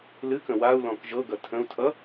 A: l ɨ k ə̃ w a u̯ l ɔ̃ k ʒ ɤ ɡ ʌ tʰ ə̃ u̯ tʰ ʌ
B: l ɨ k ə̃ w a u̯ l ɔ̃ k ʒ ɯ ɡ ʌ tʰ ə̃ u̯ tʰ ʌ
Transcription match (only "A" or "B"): A